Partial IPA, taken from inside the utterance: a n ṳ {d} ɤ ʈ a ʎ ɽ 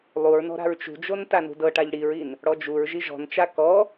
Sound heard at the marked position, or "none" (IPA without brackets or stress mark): d